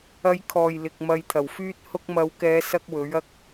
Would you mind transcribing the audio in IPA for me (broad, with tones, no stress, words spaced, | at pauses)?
ɐ˨˧jkʰɔː˨˩j lɪ˨k̚ mɐ˨˧jt̪ʰɐ˨˩wfyː˥t̚hʊ˥k̚ mɐ˨˧wkɛː˨˧ sɐ˥k̚wɵ˨˥ɥɐ˥k̚